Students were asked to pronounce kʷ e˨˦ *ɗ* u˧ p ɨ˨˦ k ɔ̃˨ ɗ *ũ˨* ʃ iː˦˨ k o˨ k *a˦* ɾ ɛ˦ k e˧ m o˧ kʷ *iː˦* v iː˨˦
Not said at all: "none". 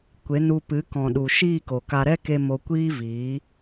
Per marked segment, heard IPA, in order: n, u˨, a˧, iː˦

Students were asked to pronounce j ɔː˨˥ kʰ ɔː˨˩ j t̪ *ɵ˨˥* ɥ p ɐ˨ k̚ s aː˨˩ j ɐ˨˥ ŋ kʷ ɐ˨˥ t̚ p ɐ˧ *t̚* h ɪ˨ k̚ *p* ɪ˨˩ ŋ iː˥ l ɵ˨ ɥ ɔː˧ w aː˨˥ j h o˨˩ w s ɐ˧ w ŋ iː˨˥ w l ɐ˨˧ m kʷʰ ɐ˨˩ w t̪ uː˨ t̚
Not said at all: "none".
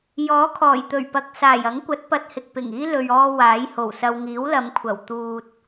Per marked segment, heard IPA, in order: ɵ˨˩, t̚, p

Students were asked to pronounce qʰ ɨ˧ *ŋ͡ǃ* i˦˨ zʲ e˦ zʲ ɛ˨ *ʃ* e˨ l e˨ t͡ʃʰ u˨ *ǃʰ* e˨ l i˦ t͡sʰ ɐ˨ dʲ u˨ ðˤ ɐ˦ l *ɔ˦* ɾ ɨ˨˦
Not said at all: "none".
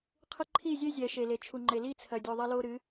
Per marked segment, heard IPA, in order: ǃʰ, ʃ, ŋ͡ǃ, o˦

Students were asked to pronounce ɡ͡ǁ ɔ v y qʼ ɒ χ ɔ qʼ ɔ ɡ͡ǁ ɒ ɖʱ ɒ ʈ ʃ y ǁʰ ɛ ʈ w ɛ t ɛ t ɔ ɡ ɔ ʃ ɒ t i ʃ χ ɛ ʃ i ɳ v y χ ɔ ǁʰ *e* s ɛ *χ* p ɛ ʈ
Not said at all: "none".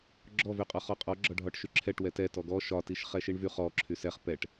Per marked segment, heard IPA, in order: y, χ

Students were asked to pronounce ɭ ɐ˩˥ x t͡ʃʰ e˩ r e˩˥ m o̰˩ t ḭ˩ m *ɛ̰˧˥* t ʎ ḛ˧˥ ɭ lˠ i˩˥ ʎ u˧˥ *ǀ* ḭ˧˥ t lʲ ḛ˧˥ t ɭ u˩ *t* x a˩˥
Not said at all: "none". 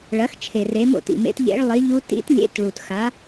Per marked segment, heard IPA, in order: ḛ˧˥, t, t

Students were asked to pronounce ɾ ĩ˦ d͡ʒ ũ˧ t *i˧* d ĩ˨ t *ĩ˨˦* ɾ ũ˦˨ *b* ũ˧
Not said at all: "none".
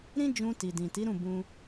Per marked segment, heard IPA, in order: i˨, i˨˦, b

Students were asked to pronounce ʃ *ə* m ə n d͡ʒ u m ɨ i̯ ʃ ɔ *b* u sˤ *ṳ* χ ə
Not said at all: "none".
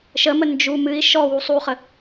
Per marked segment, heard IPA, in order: ə, w, u

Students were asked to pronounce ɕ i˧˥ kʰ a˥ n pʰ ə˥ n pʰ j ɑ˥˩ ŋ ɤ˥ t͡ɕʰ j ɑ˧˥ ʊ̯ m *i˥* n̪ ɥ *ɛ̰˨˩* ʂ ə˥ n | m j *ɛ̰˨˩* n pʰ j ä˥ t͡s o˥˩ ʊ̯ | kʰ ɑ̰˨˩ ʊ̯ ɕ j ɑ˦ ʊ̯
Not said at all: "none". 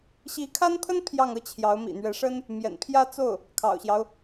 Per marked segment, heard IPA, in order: ḭ˨˩, ɛ˧˥, ɛ̰˨˩

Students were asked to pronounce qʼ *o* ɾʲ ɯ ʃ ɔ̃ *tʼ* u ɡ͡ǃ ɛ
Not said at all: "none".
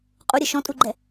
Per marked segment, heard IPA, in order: u, tʼ

